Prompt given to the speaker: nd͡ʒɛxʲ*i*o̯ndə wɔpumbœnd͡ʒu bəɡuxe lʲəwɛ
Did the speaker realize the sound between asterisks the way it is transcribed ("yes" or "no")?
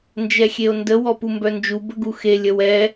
no